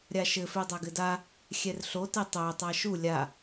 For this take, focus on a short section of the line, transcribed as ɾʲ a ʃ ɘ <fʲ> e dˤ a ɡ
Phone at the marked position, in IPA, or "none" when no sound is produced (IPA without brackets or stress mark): f